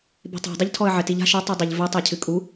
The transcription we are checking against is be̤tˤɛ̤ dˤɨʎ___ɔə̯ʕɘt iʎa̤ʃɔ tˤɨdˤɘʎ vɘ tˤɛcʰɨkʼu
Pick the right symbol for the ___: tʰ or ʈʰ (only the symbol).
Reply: tʰ